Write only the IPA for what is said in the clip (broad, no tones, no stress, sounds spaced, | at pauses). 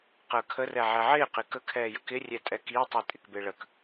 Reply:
q əː kʰ ə r ɛ ʕ ɛ ʕ ɪː q ɪ k ə kʰ ɛː j ə k ɪ rʲ ɛ tʼ ɛ k i tˤ i tʼ ɪ k b ɪ ɭ ə k